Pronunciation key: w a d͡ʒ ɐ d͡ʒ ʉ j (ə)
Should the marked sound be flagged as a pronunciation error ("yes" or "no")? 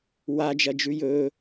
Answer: yes